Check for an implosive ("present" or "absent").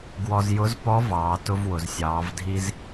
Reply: absent